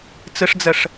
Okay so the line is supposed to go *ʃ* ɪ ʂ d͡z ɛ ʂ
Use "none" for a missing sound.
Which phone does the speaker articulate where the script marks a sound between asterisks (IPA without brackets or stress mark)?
t͡s